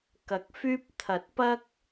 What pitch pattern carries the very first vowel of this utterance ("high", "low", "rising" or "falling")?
low